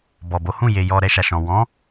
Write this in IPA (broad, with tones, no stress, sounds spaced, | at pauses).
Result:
b ɔ˨ b o˨˦ h ũ˦˨ j e˨ j ɔ˧ ɾ ɛ˧ ʃ a˨ ʃ ɔ̃˨ w ɔ̃˨˦